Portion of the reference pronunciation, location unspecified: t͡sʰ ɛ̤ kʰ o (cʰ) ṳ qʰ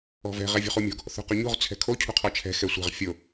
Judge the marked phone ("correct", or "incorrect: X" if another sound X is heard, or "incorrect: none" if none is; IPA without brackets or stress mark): correct